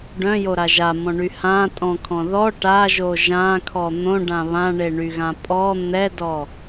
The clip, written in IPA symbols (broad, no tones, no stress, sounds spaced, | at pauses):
ɖ œ̃ j o ɾ a ʒ a m ɔ̃ ɳ y h ã tʼ ɔ̃ kʰ ɔ̃ ð ɔ ʈ a ʒ o ʒ ã kʰ ɔ n̪ õ ɖ ã β ã ɳ e ɳ y ɣ ã pʼ ɔ n̪ ɛ d ɔ